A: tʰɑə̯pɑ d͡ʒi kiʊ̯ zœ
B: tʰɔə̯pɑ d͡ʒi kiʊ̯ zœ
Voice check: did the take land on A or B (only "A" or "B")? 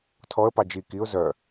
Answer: B